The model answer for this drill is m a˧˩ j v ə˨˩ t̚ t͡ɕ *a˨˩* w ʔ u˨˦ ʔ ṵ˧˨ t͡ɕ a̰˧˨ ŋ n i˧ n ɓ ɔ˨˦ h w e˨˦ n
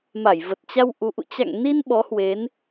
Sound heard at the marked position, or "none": a˧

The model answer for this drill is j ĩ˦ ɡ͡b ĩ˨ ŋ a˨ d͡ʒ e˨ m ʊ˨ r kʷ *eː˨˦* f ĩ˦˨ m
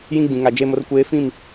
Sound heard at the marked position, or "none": eː˨˦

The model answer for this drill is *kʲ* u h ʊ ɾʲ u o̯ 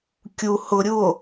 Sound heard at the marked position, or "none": kʲ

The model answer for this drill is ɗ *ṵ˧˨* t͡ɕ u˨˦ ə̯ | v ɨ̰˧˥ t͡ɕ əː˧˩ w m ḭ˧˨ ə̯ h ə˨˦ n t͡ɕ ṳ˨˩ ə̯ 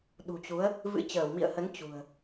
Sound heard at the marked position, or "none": ṳ˨˩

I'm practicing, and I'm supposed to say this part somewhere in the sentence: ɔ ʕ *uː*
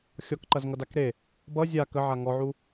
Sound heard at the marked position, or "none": u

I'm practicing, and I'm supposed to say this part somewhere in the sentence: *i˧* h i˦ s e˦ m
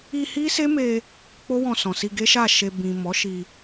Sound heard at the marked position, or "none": i˧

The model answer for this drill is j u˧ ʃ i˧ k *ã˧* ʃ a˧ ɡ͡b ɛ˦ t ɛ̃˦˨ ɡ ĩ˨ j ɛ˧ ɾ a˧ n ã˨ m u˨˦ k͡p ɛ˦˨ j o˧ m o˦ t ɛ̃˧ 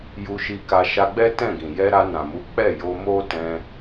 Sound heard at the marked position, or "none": a˧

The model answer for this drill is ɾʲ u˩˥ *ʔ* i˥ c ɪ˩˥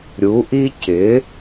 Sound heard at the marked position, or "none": ʔ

